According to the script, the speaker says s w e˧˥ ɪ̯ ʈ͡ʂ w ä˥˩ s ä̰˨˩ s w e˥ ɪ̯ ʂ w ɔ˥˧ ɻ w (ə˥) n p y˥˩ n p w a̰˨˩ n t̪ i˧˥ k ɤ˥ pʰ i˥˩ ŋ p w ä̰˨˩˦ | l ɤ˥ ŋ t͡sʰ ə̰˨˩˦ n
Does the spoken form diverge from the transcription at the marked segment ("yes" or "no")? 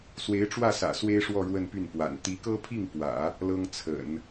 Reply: yes